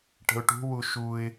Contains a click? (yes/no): no